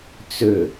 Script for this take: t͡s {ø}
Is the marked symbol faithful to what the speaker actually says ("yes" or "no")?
yes